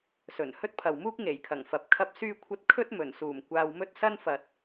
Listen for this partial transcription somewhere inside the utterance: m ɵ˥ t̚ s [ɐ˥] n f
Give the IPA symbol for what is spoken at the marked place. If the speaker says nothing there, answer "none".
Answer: ɐ˥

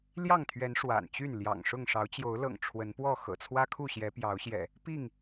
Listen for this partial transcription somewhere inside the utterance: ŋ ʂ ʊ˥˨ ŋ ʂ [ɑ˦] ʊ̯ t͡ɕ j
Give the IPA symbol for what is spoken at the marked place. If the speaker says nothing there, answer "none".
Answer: ɑ˨˦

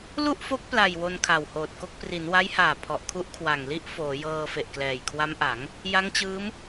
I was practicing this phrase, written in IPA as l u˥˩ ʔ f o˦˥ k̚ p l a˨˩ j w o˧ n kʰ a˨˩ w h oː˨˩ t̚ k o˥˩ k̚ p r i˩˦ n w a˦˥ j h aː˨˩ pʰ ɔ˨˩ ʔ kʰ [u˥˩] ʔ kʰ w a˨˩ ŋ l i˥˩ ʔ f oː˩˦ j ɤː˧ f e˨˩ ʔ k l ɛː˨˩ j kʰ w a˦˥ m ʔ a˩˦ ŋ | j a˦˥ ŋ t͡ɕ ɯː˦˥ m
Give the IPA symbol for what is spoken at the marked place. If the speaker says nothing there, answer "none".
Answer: u˦˥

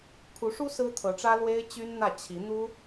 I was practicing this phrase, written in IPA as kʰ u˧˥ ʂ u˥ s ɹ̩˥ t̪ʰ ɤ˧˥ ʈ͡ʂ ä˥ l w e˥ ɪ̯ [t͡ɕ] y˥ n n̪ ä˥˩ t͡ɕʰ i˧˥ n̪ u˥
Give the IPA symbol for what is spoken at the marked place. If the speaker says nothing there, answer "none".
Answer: t͡ɕ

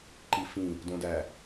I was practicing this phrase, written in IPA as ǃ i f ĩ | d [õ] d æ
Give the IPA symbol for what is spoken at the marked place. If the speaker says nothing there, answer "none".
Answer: õ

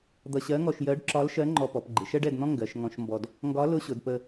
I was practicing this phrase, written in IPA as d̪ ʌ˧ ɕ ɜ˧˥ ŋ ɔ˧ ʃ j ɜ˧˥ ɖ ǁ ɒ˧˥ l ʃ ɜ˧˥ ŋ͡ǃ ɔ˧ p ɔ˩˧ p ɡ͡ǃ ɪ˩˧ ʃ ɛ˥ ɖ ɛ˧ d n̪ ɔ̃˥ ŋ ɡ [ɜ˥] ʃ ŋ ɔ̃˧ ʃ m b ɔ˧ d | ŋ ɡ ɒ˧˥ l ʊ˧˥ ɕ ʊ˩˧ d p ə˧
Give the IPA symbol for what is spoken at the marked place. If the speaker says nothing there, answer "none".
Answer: ɜ˩˧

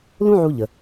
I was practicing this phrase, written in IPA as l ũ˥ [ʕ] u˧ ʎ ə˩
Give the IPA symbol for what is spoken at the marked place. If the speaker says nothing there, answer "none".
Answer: ʕ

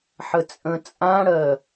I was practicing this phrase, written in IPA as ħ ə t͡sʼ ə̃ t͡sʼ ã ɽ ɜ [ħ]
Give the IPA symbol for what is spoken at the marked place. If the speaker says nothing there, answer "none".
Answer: none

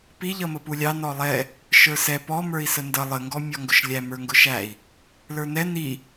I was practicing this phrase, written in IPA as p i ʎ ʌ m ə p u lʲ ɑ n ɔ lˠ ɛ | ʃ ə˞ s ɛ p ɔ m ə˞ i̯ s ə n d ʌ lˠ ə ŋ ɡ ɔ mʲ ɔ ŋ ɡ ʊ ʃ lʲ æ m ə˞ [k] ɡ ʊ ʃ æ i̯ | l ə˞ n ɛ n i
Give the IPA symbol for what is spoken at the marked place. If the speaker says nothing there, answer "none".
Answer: ŋ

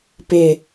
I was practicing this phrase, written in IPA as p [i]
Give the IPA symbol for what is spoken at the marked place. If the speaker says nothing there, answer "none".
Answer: ɪ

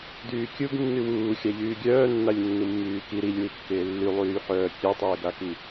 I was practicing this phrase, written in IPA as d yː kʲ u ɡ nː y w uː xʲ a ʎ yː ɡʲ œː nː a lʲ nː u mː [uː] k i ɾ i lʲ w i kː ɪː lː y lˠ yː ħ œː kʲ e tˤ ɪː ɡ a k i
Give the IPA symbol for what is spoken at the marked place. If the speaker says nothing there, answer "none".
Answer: yː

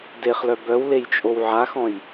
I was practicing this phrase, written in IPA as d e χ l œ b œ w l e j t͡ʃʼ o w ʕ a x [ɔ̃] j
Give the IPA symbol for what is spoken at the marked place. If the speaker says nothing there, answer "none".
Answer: ɔ̃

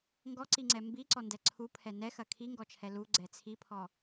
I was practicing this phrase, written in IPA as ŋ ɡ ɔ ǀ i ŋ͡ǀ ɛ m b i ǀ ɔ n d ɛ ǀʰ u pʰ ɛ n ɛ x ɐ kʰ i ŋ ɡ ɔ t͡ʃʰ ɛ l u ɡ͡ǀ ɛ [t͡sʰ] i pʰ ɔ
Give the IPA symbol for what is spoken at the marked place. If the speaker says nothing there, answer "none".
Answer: t͡sʰ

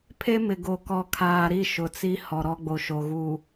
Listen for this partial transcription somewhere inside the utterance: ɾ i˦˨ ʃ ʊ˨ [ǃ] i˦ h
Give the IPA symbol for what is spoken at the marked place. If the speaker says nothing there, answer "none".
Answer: t͡s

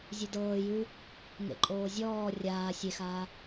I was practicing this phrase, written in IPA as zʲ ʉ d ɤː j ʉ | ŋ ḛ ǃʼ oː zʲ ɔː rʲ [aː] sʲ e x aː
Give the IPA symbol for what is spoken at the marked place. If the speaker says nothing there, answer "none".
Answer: aː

